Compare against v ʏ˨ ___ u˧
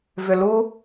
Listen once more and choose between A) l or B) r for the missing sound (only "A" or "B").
A